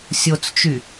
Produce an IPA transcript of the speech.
sʲ o t͡s t͡ʃ y

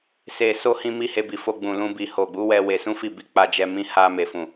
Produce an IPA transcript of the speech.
s e˨ s o˧ h ĩ˦ m i˦ h e˧ b i˨ f o˧ ɡ͡b ũ˨ l ũ˧ b i˨ h o˨ ɡ͡b u˨˦ w ɛ˧ w e˧ s ũ˦ f i˦˨ b i˧ k͡p a˧ d͡ʒ ɛ˧ m ĩ˧ h a˧ m e˨ f ũ˨

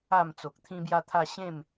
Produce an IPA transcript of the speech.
a˨˩ m t͡s o˨ k̚ t̪ʰ ĩ˦ b j a˦ t̪ʰ a˥˧ ɕ ẽ˥˧ m

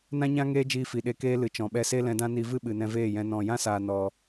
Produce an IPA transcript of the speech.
n ã˦ ɲ ã˦ ŋ eː˦ d͡ʒ iː˧ f i˨ ɗ e˧ k eː˦ l ɨ˨ t͡ʃ ɔ̃˨ ɓ ɛ˧ s e˦ l ɛ̃˧ d ã˦ n i˧ v ɨ˦ ɓ ɨ˨ n ɛ̃˧ v eː˦˨ j ɛ̃˧ n ɔ̃˨ j ã˦ s aː˨ n ɔ˨

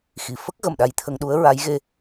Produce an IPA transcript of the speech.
x i˨˩˨ f ə˦˥ k̚ ɣ ə˨˩ m ɗ a˧ j t̪ʰ ə˧ ŋ ɗ u˧˥ ə̯ ɹ a˧˥ j ɣ e˧

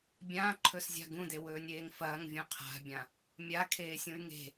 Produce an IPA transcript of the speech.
bʲ ãː ǃʰ ɵ s zʲ a̤ ɡ ũ d e w ɵː nʲ eː ŋ f ɐː ŋ vʲ ũ qʰ a̤ bʲ ã | mʲ a kʰ eː sʲ ũ y̯ ŋ e̤

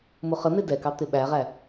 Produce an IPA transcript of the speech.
m ʊ χ ə n̪ ɪ d ɛ k ɑ t̪ ɪ ɓ æ ʁ æ

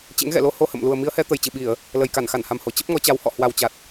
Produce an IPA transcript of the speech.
t͡ɕ ḛ˧˥ ŋ ɣ ɛ̰˧˨ l o˧ h o˧ h ə̰˧˨ m l u˨˩ ə̯ m i˨˦ ə̯ h ɛ˨˦ t̪ ə˨˩ j t͡ɕ ɨ˧˩ ɓ i˧˩˨ ə̯ | l ə˨˩ j k a˧˩ n x a˧˩ n h a˨˩ m h o˧˩ t͡ɕ ə˦˥ p̚ ŋ ɔ˨˦ t͡ɕ a˨˦ w h ɔ̰˧˨ h w a˨˩ w t͡ɕ a˨˩ t̚

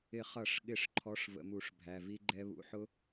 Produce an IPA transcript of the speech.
ɪ˧˩˧ χ ʌ˧˩˧ ʂ ɠ ɪ˧˩˧ ʂ ǃʰ ɔ˧˥˧ ʂ v ə̰˧˩˧ m u˧˩˧ ʂ bʱ æ˩˧˩ v i˦˥ ɡ͡ǃ ɛ˦˥ β ṵ˨˦ ħ ʊ˦˥

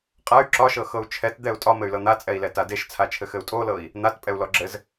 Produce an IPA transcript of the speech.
qʼ a y̯ ǁ ɒ ʃ ɤ x ɤ u̯ t͡ʃʰ ɛ t d̪ ɛ u̯ tʼ ɒ m ɘ y̯ l ɤ n̪ a t͡sʼ ɛ i̯ l ɛ t a d e ʃ t͡sʰ a t͡ʃʰ ɘ x ɘ u̯ tʼ o l ɤ i̯ | n̪ a t pʼ ɛ u̯ l ɔ ɡ͡ǁ ɘ z

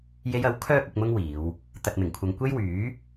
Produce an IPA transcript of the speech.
j e˧ j ɐ˨˥ w kʰ œː˥ k̚ ʊ˧ k̚ m ʊ˥ ŋ w iː˨˧ w | t̪ ɐ˨ t̚ m ɪ˨˩ ŋ kʷʰ ɐ˨ ŋ kʷ e˥ j w yː˨˥

